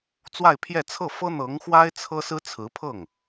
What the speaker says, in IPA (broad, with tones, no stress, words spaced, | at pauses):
t͡swa˥˧ɪ̯pʰjɛ˥˧ t͡sʰɤ˥˩fɤ˥n̪ɤ˧˥ŋxwa˥ɪ̯ t͡sʰɤ˥sɹ̩˥t͡sʰɹ̩˧˥pʰɤ˥˩ŋ